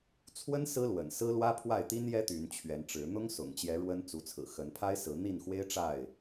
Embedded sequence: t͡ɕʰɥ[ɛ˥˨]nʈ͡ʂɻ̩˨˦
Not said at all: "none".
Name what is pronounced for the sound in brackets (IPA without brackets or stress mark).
ɛ˨˦